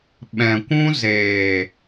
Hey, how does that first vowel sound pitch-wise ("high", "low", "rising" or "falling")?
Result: low